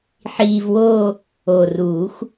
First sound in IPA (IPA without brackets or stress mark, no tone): ħ